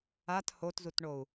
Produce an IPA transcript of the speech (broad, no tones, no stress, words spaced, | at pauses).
at hotzutɳou̯